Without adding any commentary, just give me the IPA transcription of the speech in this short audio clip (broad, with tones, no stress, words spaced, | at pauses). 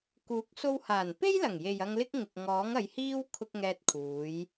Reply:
kuː˨˥k̚so˧whaː˨˩n pe˥jlɐ˨˩ŋje˨j ɐ˧ŋlɪ˥k̚ ŋɪ˨k̚ ŋɔː˨˥ŋɐ˨˧jhiː˥w kʰʊ˧k̚ ŋɛː˧t̚kʰuː˨˧j